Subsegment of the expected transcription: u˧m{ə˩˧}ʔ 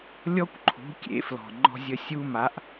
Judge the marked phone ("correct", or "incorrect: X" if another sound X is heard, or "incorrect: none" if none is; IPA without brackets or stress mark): incorrect: a˩˧